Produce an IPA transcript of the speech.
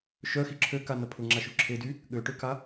ʃœxi ǁʰøkanɐ pʰʊŋ͡ǁaʃy ǁʰedy | ɠøʈøka

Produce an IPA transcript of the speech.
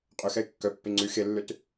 qʼøxɛɪ̯ kːœpːe ŋ͡ǀy xelːøt

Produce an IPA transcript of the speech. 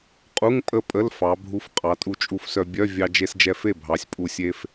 qʼu˧˥˧ŋ pʼə˥˧pʼə˧˥˧l fɑ˩˧bʱu˧fqʼɑ˩˧ tʼu˧t͡ʃʼu˧fsœ˧ bʲœ˧˥˧ vʲɑ˧d͡ʒe˧s d͡ʒɛ˧fe˥˩ bʱɑ˩˧sʲpʼu˨˩sʲe˧f

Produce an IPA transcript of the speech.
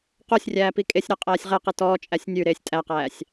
qosʲrʲæːpi kʼesʲɾæqʼæːsʲ ʁɛqi tɔːt͡ʃʼæsʲ nʲʉɾeːsʲ tʼæqæːsʲ

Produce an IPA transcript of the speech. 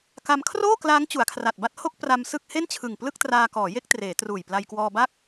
ka˧mkʰroː˥˩klaː˦˥ŋ t͡ɕu˩˦a̯kʰra˨˩t̚ba˥˩t̚ ho˥˩k̚ pra˧m sɯ˥˩k̚ he˥˩nt͡ɕʰɯ˨˩ŋ plɯ˥˩k̚traː˧kɔː˩˦ je˥˩k̚treː˩˦truː˨˩jpla˧j kwɔː˧ba˥˩k̚

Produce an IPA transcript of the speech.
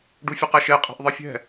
ɖufʲuqeʃe qʼe̤ʔðˤɨfʲɛ̤

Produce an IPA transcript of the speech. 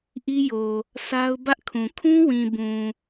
ʔi˦jo˨ | sa˦ʊ̯ bä˦ʔkʰũ˨ kʰũ˦wĩ˨bũ˨

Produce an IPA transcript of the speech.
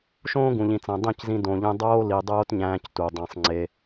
ʃõː˦ɡũ˨ʎĩ˨t͡sæ̃˨ dˤĩ˦˨czĩ˧ dõ˨ʎĩ˧ dˤoː˦li˨dˤoː˦tɲæ̃ː˧c tu˨dˤẽ˧sˤ ŋ͡ǀe˧

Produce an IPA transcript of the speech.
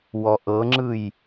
wɔʔɤŋ͡ǁɯj

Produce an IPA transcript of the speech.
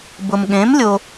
bʊ˨mɠẽ˨˥m lʲo˨

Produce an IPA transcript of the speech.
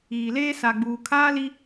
iː˨leː˦ sa˨ɡ͡buː˨kʰaː˦li˦

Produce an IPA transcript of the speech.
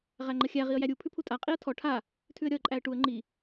ʁæŋ͡ǃəxʲæ ʁiə̯jæɾʲu pʰʉpʰutʼa qʼiə̯tʰɔ ʈʰa | tʰʉə̯ɾʲɒə̯ǃʼæə̯ʈuə̯ ŋ͡ǃi

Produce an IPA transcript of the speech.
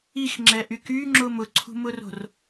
ixŋ͡ǁɛʔy kyŋ͡ǁʊm ʊǀʰṳmʊro̤r

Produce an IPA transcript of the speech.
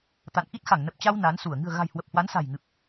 t̪a̰˧˨n ʔi˦˥t̚xa˧˩ŋnə˨˩p̚t͡ɕa˧w na˨˦nsu˧˩ə̯ ŋɨ̤˨˩ə̯ɣa̤˨˩j hwə˨˩p̚hwa˨˦nsa̤˨˩jŋɨ˨˩p̚

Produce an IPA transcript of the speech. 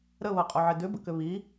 ɾəβɤqʼoʕɪ dʏbə̰kʏ βi

